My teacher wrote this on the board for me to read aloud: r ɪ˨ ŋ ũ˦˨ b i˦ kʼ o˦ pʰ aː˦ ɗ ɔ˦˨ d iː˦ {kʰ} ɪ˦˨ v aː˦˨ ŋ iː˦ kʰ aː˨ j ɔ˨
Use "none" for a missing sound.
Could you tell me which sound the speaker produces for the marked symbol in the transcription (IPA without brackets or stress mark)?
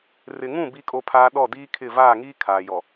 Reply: kʰ